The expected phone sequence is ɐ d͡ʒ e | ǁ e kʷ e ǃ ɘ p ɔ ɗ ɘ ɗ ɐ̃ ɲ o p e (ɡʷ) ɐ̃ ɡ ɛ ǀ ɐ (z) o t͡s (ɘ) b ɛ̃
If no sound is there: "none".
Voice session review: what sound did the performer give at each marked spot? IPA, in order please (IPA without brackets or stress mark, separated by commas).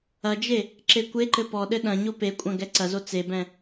kʷʼ, z, e